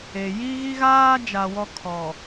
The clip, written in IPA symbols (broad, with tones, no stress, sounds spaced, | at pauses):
e˨ j i˦ ɣ i˦ ɣ aː˦ d͡ʒ a˨ w ɔ˦ kʰ ɔ˨